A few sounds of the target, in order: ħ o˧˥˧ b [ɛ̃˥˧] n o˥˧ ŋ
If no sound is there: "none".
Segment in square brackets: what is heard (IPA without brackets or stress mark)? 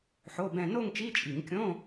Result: ɛ̃˥˧